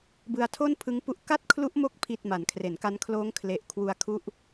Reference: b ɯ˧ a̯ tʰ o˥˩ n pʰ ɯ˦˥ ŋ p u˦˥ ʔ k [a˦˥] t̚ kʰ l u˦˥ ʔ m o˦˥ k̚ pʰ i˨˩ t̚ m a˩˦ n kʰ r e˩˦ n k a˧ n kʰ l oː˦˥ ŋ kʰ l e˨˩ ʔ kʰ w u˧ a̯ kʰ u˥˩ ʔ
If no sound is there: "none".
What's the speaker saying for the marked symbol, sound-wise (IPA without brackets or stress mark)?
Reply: a˥˩